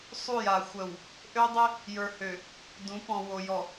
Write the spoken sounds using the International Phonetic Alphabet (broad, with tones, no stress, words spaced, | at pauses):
sˤu˦˨ja˨ xʷə˨w | ʔø˦dˤɪ˦ | jə˞˨hø˨ | dũ˨˦pɔ̃˨wo˨ jɔ˨